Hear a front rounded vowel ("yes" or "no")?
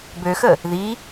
yes